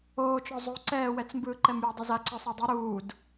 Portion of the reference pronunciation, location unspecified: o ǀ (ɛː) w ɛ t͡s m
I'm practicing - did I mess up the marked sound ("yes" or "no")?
no